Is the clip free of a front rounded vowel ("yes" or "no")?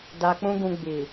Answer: yes